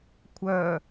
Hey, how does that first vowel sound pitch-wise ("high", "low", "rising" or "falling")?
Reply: low